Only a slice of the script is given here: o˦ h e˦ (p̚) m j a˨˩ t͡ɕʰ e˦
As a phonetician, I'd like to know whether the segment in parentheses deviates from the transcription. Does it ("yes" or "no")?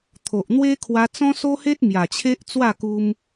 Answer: yes